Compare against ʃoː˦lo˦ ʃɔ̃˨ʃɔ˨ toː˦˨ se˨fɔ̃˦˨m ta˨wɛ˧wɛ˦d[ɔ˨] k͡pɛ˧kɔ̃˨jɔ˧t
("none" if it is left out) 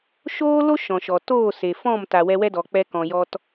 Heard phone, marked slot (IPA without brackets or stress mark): ɔ˨